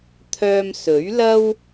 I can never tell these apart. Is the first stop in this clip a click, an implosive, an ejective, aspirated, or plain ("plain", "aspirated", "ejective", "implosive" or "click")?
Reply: aspirated